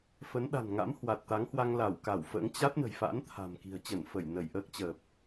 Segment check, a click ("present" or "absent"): absent